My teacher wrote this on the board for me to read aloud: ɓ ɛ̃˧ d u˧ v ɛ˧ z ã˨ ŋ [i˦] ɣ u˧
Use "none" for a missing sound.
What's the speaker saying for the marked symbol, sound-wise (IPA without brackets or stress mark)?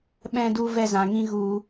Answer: ĩ˦